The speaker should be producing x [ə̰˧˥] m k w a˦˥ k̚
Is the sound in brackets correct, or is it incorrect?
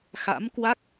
incorrect